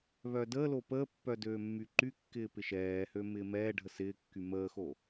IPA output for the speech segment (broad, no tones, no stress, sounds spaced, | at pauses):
β œː d əː l o p əː pː œ d øː mː y ǃ y kː ɪː p ɪ ʃ ɛː h ø m ɪː m ɛː ɖʱ ə s ɪː kː y m əː x o